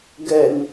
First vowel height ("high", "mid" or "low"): mid